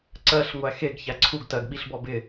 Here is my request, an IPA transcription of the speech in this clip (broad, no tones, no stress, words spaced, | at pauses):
ǀɜɬŋʷæ xeɡ çæǀʰuɡ tɜɡɓiɬ bɔbɪ